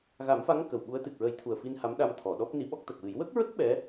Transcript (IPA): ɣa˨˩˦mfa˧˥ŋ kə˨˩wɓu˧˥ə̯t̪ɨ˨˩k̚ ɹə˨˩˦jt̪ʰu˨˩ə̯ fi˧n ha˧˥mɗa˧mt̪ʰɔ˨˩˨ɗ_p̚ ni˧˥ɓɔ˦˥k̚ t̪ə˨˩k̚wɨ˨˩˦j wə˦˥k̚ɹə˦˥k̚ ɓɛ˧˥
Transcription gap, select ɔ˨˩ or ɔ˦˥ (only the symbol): ɔ˦˥